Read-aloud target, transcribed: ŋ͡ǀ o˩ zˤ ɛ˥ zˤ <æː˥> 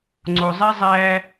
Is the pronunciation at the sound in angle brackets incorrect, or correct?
incorrect: æː˧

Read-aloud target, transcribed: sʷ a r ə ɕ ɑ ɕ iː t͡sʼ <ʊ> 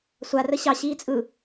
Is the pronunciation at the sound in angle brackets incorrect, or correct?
incorrect: ɯ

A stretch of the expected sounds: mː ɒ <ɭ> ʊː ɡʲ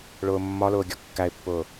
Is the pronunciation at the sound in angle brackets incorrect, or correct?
incorrect: l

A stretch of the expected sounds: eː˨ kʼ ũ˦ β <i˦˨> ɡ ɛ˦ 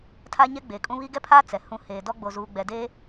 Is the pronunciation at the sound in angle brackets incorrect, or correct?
incorrect: i˦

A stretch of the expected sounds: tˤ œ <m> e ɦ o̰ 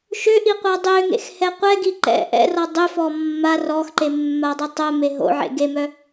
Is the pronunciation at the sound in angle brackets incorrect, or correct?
correct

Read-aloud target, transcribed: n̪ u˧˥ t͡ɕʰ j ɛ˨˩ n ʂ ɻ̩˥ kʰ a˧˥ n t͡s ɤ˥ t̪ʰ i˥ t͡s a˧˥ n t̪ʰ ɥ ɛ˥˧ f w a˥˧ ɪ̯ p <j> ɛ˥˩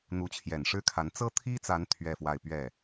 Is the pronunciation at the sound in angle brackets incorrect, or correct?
incorrect: ɥ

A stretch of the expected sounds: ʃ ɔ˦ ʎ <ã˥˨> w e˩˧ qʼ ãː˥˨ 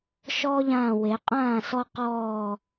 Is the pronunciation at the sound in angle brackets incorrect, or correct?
incorrect: ã˧˩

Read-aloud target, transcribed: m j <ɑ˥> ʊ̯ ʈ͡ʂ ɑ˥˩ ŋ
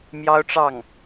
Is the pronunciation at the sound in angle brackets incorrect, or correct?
correct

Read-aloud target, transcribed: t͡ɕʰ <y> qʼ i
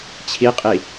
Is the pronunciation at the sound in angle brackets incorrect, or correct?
incorrect: i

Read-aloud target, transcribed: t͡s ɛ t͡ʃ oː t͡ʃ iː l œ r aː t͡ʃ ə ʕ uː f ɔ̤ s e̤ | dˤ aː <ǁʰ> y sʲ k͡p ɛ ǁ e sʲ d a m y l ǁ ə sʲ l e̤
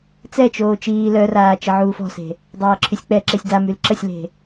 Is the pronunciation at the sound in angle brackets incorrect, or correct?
correct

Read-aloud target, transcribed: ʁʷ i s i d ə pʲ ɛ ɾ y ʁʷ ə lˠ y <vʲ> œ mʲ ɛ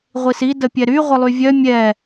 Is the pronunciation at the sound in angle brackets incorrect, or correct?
correct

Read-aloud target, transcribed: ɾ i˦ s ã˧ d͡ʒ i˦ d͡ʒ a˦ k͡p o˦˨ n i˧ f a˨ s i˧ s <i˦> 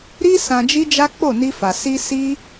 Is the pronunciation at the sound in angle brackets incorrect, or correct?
correct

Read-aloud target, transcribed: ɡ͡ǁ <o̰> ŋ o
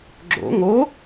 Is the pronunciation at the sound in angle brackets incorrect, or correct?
correct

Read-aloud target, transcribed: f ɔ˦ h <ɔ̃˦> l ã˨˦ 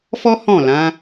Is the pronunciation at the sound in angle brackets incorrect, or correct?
incorrect: ɔ̃˦˨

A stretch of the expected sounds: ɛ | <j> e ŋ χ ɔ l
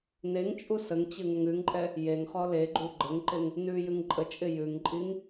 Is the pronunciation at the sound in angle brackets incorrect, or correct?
correct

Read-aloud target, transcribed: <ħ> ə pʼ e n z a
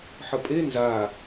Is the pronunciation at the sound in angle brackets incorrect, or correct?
correct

